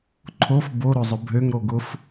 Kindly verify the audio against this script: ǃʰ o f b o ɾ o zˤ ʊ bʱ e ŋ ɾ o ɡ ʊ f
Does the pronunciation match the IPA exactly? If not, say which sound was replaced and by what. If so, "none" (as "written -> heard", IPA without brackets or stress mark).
e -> ø